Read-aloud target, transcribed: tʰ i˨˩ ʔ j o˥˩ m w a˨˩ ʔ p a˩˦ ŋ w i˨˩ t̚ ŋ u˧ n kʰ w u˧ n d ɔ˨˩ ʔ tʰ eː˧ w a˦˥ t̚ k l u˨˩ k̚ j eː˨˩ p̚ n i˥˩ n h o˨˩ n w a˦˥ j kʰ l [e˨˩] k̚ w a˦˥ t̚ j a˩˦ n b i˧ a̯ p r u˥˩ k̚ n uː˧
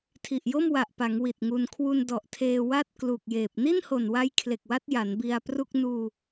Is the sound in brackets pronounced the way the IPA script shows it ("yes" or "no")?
yes